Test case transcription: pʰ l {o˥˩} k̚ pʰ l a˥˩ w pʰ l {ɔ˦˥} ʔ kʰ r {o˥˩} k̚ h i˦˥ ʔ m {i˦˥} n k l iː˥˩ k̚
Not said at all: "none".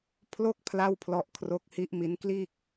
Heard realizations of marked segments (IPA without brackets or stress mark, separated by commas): o˥˩, ɔ˦˥, o˦˥, i˦˥